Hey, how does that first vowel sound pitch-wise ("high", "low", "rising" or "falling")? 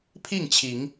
falling